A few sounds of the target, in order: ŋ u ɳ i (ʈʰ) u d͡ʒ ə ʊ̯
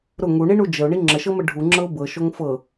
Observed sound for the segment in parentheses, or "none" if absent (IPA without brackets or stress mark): ɳ